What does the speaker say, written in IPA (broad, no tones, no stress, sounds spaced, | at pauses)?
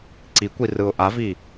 ǀ i kʷ i r ɯ ʊ̯ ʔ a v i